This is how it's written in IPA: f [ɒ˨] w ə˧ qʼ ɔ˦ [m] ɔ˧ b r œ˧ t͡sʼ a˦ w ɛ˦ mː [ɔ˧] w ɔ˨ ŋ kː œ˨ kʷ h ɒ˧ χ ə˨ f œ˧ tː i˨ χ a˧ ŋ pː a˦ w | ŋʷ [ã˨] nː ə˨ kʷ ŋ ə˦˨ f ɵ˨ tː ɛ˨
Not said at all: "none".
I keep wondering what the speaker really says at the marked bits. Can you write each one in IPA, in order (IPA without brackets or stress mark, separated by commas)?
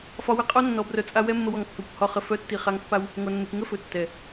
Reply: ɒ˧, nː, ə˧, a˨